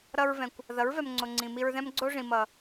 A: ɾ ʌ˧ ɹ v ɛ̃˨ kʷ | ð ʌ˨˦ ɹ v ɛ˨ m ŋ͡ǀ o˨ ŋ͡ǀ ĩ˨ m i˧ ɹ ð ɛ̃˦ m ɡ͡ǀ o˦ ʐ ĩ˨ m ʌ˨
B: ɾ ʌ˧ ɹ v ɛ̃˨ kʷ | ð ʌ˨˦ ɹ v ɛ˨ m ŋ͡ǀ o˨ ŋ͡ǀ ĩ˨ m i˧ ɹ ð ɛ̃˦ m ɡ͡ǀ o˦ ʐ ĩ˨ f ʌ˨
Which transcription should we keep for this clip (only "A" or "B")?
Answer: A